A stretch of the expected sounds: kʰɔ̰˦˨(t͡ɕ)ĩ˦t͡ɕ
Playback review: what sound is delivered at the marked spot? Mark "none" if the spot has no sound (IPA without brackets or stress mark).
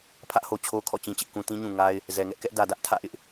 t͡ɕ